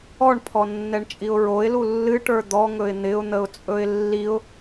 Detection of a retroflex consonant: present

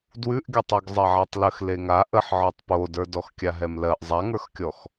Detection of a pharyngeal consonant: present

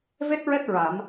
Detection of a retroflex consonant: absent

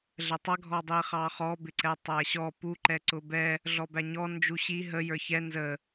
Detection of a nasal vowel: absent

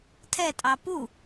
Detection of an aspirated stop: present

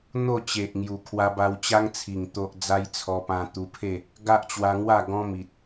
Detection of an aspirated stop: present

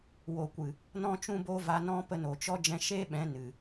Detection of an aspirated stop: absent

